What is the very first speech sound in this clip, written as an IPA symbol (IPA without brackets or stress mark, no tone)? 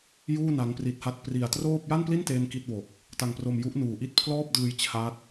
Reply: j